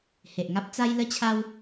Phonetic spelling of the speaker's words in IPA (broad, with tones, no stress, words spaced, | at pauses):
he˨ʔ ŋa˦p̚ t͡sa˦jlə˦t͡ɕʰa˦w